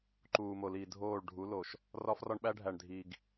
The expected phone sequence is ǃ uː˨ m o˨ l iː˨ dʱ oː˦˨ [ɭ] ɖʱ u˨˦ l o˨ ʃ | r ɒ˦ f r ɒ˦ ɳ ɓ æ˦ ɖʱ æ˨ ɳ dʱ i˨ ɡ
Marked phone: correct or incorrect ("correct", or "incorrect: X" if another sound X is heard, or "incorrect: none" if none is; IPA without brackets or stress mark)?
correct